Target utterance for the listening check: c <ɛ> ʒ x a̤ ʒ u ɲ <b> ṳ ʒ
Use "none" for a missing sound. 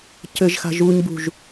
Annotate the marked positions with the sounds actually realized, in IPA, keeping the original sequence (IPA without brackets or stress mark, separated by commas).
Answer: ɘ, b